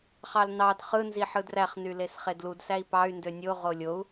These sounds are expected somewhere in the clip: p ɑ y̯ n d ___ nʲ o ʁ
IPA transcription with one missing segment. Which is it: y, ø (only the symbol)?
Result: ø